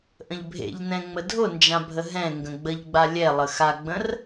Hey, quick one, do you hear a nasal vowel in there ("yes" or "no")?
yes